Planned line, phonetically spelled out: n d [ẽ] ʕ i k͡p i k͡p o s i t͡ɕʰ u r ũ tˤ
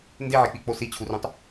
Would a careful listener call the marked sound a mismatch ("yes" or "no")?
yes